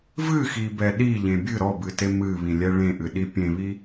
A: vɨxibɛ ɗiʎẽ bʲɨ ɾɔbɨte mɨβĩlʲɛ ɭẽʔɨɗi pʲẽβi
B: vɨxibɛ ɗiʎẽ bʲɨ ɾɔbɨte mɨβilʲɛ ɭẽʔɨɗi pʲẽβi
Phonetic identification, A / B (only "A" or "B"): A